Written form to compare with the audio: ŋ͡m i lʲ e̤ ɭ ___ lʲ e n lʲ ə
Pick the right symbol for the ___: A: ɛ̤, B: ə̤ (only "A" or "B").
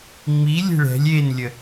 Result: A